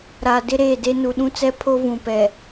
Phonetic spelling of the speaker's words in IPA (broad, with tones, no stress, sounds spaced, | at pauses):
ɾ a˨ d ɪ˦ ɾ eː˦˨ d e˦ n u˨ ɗ ũ˦ t͡s ɛ˦ pʰ o˦ v ũ˨ p ɛ˨